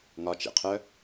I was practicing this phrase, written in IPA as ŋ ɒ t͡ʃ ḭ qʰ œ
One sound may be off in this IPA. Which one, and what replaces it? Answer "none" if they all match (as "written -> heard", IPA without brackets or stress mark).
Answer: none